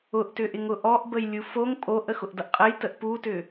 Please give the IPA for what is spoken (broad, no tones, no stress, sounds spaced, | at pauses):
ʊ ʔ t ʏ ʔ ɪ ŋ ʊ ʔ ɔ ʔ b ə j lʲ u f o ŋ pʼ o ʔ ə x ʊ ʔ d ʌ ʔ qʼ ə j t ə ʔ p u t ʏ